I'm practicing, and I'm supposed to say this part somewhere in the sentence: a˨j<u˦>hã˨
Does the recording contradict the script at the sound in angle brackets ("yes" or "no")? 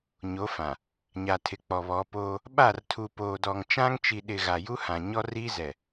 no